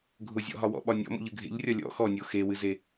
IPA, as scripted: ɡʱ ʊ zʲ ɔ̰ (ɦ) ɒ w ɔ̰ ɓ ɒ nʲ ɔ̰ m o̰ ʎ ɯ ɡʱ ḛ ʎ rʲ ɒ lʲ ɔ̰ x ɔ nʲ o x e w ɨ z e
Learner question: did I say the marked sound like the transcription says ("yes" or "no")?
yes